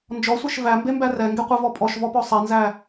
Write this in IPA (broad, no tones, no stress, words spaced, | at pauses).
nd͡ʒɔsʷeʃ væmbembæ rɛŋɡeqʷɛvɔ pʼɔʃvɔpɔ sˤɛnzæ